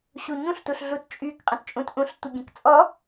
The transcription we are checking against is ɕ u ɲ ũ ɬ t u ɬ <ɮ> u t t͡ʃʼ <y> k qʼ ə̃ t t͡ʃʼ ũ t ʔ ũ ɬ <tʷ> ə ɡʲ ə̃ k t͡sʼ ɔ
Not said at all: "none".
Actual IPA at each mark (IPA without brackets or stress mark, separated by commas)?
ɮ, y, tʷ